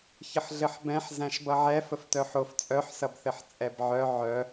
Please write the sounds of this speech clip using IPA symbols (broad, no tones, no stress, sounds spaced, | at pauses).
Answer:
ç ə ħ ɮ ɘ ħ b ɛ̃ ħ z æ̃ ʃ b ʌ ʕ ɛ f ə f t œ ħ o f t͡sʼ œ ħ s ʌ b θ ɘ ħ t͡sʼ ɛ b ʕ œ ʕ œ